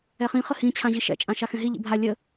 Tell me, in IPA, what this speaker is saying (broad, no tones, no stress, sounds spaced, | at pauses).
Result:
ɛ χ ĩ χ ə h ĩ t͡ɕʰ ã ʑ i ʃ ɛ̰ t͡ʃʼ ã ʃ a x ɛ̃ ɦ i ʎ ḭ bʱ a lʲ ə